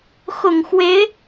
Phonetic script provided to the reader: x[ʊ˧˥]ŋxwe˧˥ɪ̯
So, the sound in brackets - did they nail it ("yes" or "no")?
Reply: no